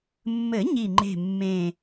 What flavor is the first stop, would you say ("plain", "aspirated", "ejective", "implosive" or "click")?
click